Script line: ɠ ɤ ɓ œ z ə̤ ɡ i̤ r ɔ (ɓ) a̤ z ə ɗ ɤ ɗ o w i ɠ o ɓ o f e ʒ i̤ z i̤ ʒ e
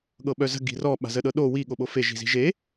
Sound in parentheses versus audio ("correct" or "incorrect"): correct